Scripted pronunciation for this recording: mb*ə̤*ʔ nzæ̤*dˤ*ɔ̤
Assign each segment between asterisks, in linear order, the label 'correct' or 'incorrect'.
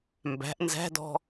incorrect, incorrect

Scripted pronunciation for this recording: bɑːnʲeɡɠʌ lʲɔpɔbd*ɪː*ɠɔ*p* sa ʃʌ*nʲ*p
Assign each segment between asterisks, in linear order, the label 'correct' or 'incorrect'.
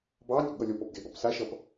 correct, correct, incorrect

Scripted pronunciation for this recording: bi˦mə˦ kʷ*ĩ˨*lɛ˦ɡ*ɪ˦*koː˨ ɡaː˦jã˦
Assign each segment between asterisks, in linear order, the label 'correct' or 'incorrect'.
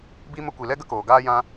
incorrect, incorrect

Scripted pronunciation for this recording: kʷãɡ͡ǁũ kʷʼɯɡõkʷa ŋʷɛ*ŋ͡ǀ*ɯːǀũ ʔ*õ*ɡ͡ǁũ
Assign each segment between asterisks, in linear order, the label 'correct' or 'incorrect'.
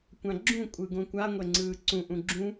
correct, incorrect

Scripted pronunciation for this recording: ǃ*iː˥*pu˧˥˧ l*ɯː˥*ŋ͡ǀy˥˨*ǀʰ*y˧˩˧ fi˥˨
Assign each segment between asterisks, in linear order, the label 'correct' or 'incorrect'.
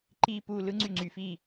correct, incorrect, incorrect

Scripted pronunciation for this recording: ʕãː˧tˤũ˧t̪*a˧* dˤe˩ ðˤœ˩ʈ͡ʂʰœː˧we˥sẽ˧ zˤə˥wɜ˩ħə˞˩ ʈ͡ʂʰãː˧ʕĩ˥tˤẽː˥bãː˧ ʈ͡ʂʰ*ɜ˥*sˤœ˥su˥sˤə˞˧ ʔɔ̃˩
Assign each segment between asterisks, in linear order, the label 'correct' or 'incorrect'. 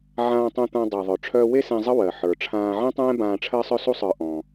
incorrect, correct

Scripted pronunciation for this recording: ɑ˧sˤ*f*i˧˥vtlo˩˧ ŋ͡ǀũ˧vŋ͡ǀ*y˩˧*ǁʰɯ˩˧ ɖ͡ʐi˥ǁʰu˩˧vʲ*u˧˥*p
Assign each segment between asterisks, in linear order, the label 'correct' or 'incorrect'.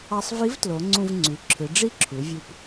incorrect, correct, incorrect

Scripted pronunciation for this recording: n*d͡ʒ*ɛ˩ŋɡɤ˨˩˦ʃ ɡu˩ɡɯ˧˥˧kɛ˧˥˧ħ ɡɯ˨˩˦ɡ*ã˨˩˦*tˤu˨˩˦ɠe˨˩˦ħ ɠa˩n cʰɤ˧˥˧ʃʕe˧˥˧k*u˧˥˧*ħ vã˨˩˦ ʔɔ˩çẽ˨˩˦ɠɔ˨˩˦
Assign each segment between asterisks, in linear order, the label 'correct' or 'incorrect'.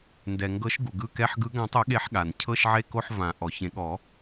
incorrect, correct, incorrect

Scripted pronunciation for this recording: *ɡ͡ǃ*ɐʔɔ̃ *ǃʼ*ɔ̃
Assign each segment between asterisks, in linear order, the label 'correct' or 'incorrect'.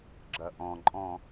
incorrect, correct

